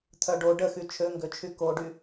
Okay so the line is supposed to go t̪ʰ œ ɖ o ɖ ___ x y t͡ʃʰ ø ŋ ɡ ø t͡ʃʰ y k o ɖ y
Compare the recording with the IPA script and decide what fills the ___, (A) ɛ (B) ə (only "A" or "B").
B